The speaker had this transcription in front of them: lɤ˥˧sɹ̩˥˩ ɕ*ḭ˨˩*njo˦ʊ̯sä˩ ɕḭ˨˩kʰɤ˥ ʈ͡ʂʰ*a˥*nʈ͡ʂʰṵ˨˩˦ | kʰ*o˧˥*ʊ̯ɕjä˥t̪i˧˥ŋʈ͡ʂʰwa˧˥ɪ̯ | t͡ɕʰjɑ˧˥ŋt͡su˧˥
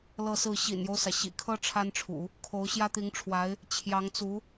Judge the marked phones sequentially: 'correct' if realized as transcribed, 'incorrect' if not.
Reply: correct, correct, correct

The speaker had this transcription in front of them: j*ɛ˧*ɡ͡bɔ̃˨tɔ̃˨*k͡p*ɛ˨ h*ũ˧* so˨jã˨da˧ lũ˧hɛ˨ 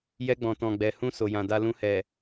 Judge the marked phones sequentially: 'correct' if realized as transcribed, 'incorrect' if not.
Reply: correct, incorrect: ɡ͡b, correct

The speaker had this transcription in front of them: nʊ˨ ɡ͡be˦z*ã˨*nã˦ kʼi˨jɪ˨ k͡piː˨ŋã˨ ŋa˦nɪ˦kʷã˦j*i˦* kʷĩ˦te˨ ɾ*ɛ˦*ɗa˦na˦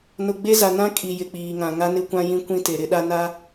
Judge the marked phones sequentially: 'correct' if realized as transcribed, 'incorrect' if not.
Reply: incorrect: a˨, incorrect: ĩ˦, incorrect: ɪ˦

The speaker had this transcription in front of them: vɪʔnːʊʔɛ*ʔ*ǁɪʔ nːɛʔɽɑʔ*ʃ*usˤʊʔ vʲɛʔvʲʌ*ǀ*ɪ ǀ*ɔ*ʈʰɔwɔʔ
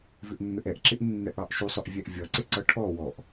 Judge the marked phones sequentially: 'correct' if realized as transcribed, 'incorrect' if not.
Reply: correct, correct, correct, incorrect: ʌ

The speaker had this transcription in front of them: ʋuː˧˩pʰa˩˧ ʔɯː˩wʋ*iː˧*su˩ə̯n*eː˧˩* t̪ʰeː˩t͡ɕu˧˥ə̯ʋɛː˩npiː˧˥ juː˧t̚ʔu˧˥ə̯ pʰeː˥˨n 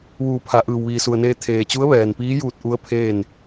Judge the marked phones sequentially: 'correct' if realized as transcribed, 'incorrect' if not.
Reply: incorrect: iː˩, incorrect: eː˧

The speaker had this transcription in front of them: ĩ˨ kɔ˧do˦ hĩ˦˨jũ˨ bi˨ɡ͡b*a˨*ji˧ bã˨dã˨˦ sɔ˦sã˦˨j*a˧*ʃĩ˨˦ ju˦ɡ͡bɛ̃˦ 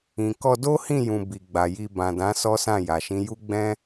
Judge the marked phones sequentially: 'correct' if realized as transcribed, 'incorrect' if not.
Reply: correct, incorrect: a˨

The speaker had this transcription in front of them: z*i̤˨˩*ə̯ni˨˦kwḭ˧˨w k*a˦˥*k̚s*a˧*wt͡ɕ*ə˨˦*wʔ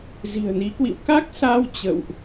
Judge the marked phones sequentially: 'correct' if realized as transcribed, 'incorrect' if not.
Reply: correct, correct, correct, incorrect: ə̰˧˨

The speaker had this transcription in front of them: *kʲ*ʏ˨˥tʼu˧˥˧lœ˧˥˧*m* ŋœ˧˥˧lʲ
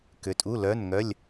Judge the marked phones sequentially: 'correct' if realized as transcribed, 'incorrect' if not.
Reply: incorrect: k, incorrect: n

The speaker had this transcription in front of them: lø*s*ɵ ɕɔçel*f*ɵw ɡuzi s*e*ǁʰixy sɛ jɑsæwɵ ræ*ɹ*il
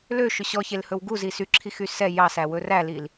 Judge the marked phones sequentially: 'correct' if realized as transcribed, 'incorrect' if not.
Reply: incorrect: ʃ, incorrect: h, incorrect: y, incorrect: l

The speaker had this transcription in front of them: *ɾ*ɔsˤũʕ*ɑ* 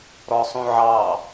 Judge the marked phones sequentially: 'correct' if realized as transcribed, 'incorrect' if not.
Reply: correct, correct

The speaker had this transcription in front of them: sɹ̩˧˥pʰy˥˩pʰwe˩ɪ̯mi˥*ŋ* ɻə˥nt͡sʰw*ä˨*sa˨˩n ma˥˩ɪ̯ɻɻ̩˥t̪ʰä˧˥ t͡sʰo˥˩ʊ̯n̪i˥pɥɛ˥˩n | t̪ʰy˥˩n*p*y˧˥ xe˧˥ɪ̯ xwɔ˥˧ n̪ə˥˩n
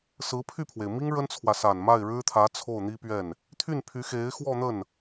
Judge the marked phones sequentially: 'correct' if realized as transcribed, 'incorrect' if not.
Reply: correct, correct, incorrect: pʰ

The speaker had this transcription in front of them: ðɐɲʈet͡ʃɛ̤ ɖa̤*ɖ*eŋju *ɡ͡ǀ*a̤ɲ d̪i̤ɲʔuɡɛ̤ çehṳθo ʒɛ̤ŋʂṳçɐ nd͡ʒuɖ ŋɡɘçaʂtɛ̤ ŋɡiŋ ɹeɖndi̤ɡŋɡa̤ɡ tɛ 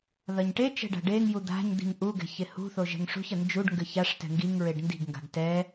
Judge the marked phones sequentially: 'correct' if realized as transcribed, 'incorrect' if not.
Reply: correct, incorrect: d̪

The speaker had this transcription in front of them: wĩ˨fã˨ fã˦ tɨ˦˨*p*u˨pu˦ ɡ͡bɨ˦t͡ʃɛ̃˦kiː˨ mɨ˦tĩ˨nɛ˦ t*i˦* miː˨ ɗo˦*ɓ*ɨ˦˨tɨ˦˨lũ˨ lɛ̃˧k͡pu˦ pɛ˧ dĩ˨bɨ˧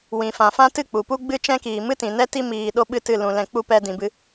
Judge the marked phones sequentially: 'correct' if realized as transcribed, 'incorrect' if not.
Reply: incorrect: k͡p, correct, correct

